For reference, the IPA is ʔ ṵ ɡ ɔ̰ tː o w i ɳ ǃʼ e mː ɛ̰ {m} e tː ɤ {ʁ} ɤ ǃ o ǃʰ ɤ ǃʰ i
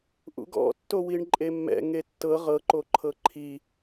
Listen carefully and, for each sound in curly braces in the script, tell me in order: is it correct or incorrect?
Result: incorrect: ŋ, correct

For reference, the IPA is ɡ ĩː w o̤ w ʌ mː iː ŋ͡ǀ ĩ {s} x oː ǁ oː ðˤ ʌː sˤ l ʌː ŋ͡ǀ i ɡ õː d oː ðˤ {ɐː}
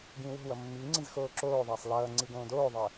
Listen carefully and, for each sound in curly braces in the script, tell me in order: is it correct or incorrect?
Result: incorrect: z, incorrect: əː

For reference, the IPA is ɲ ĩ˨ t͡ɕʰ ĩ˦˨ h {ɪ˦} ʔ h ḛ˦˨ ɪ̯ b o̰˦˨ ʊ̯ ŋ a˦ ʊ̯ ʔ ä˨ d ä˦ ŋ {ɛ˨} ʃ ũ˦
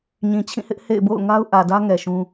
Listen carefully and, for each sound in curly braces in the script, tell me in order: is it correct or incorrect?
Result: correct, correct

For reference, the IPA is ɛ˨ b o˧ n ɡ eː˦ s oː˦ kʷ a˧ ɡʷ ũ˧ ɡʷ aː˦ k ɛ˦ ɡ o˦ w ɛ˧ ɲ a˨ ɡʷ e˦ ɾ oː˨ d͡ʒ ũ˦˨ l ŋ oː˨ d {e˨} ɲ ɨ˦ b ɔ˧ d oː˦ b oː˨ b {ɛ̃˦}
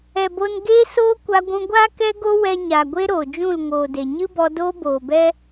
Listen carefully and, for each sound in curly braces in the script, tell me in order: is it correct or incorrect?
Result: correct, incorrect: ɛ˦

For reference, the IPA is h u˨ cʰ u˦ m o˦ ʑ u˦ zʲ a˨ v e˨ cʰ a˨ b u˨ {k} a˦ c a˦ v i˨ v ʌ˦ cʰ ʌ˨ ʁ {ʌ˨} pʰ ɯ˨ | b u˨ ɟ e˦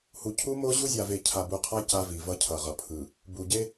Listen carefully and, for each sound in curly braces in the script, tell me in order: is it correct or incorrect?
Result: incorrect: qʰ, correct

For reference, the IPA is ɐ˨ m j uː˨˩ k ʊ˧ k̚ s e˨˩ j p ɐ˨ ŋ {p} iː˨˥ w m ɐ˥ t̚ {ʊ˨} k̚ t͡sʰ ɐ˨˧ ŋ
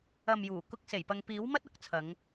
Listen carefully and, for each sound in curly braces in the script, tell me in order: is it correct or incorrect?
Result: correct, incorrect: ʊ˨˥

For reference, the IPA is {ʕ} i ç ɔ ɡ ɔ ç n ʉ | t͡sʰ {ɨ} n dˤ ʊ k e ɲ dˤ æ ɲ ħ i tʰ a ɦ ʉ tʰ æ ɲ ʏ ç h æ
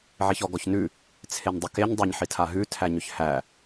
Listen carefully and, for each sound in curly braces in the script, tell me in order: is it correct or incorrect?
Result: correct, incorrect: e

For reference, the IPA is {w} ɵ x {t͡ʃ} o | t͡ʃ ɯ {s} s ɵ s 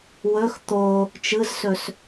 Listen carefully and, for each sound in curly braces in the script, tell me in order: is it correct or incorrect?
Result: correct, incorrect: t̪, incorrect: z

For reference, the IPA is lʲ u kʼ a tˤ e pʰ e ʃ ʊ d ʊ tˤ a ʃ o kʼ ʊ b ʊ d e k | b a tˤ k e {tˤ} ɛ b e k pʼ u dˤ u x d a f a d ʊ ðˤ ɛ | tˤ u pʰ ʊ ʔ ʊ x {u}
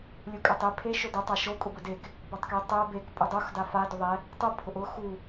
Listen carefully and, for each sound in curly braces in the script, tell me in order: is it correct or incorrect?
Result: correct, correct

